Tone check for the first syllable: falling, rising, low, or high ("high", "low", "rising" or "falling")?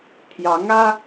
rising